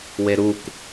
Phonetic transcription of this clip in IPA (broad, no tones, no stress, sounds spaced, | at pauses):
w e ɾ u k